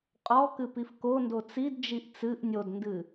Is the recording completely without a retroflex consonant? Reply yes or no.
yes